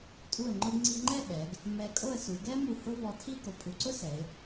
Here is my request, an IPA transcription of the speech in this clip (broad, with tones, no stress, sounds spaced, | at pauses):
tʼ u˧˩ ə̯ ŋ͡ǃ ʊ˧ ɡ ŋ͡ǀ i˧ ŋ͡ǃ ɛ˥˧ ɓ ɛ˩˧ ɡ | m ɛ˧ kʼ o˥˧ ə̯ s u˩˧ ɡ ɛ˥ m u˧˩ h ʊ˥ v ɔ˧ tʰ i˥ ɡ o˩˧ pʼ u˩˧ ǀ ʊ˥ s ɛ˩˧ ɪ̯